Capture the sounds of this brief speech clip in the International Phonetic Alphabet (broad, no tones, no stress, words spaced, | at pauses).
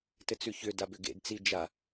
tɘt͡sʉçʏda bʏɡḛdt͡si d͡ʒa